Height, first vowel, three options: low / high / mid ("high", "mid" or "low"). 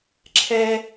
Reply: mid